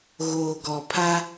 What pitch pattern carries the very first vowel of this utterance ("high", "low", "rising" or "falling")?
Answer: low